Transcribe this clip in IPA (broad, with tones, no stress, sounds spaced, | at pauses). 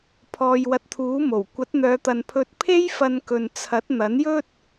pʰ ɔː˨ j w ɐ˨˥ t̚ t̪ʰ uː˨˥ m o˨˩ w kʷ ɐ˨˥ t̚ n̪ œː˨˧ t̪ ɐ˨ n pʰ ɵ˧ t̚ pʰ e˥ j f ɐ˧ n k ɵ˨ n t͡sʰ ɐ˨˥ t̚ n̪ ɐ˨˥ n j ɵ˥ t̚